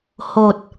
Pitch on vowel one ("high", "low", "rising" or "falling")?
low